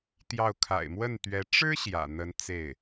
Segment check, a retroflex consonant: present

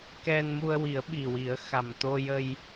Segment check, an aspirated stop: absent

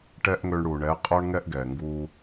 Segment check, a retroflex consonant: present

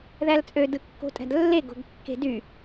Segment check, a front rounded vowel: present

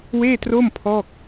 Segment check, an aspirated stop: present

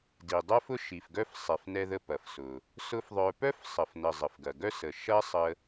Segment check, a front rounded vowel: present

